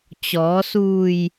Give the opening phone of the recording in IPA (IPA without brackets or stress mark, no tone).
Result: t͡ɕ